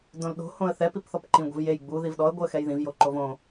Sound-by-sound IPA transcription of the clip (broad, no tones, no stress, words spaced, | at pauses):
dõlɗo̤ hõə̯θɛ pipθɔpǃĩ ɡʷɛ̤vjej ɡ͡bu ðivɗɔə̯ ɡʷɨə̯xɛjðĩv joǃovõ